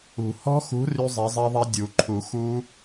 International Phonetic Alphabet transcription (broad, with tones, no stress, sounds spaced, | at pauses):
ṳ˨˩˦ h ɔ̤˦˥ x ṳ˨˥ r y˦˥ zˤ e˨˥ zˤ e˦˥ ðˤ ɛ˦˥ dʲ u˨˩˦ ǃʰ u˨˩˦ x u˦˥